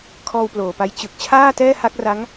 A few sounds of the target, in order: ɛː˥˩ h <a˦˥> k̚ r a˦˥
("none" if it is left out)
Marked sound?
a˦˥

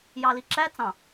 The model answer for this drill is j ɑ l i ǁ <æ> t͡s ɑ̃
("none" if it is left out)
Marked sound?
æ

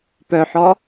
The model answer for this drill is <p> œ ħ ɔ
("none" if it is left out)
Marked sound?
p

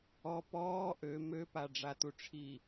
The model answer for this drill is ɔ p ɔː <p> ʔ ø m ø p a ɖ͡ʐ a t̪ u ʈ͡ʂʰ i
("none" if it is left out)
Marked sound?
none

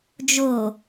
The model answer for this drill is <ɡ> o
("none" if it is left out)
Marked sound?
d͡ʒ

